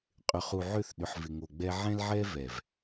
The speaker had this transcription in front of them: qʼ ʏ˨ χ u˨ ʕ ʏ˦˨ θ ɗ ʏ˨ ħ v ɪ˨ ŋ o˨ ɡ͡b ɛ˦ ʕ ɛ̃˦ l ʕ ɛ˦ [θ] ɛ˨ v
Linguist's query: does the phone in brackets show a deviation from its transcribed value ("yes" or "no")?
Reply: yes